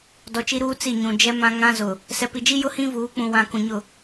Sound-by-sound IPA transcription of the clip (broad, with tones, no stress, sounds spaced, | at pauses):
d ɔ˨ t͡ʃ i˦ ɾ uː˦ t͡s i˦˨ ɲ ũ˨ d͡ʒ ɛ˦ m ã˦ ŋ ã˦ z ʊ˨ | s ɛ˨ p i˨ d͡ʒ i˦ j ʊ˦ h ĩ˦ v uː˨˦ k͡p ũ˨ w ã˨ k ũ˨ ɲ ʊ˦˨